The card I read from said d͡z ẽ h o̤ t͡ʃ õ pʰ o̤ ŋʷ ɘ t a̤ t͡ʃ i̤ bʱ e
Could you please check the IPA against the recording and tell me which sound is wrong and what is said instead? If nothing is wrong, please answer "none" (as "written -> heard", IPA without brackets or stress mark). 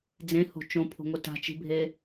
none